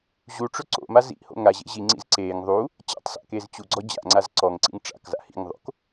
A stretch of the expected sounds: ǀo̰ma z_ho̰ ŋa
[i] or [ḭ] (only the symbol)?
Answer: ḭ